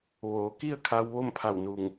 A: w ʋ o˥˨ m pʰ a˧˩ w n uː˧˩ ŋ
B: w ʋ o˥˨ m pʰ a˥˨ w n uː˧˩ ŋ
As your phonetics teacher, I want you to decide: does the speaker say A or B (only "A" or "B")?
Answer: A